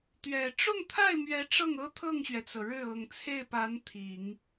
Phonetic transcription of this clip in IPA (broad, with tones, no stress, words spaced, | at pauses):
t̪ɥɛ˨˩ ʈ͡ʂʊ˥˧ŋt̪ʰa˥˩ɪ̯mɥɛ˧˥ ʈ͡ʂɤ˥˩ŋɤ˥ t̪ʰɤ˥˩ŋɕɥɛ˩t͡sɤ˩ ɻɻ̩˥˩ ɤ˨˩ŋt͡sʰe˥˩ɪ̯pa˧˥n t̪ʰi˨˩˦ŋ